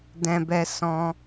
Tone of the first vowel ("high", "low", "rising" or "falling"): high